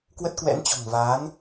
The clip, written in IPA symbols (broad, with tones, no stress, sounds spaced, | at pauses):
k w ə˦˥ t̚ k w ɛ̰˧˥ n t͡ɕ ɔ̤˨˩ ŋ v aː˨˦ n